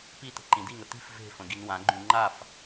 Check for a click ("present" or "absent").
present